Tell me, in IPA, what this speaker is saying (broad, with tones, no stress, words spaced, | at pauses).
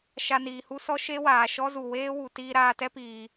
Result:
ʃa˧niː˨hu˦ sɔ˦ʃe˦waː˨ ʃɔ˦zu˨ weː˦wu˨ tiː˧ɾaː˧tɛ˦piː˨